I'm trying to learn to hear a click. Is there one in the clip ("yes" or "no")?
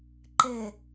yes